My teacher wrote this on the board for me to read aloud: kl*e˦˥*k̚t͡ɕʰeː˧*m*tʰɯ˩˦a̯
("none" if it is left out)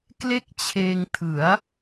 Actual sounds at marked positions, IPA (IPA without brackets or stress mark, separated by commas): e˥˩, ŋ